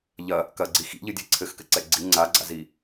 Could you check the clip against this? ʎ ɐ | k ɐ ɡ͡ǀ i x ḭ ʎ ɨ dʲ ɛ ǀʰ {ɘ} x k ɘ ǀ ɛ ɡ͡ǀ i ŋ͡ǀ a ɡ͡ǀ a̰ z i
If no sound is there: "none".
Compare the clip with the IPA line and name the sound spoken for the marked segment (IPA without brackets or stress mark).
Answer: ɘ